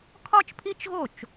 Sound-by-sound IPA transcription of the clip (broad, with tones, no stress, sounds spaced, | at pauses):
kʰ ɒ˥ t͡ʃ pʰ i˥ t͡ʃ ɣ o˥˩ t͡ʃ